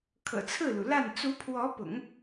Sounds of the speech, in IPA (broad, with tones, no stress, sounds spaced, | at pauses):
kʰ ɤ̰˨˩ t͡sʰ ɹ̩˥˩ l u˩ l a˥˩ n t͡s u˧˥ pʰ w ɔ˧˥ p ʊ̰˨˩˦ ŋ